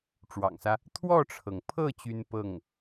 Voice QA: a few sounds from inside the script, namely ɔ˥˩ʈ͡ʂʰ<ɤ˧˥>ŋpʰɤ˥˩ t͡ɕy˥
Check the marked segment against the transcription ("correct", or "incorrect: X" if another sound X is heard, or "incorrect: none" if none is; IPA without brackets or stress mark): incorrect: ɤ˩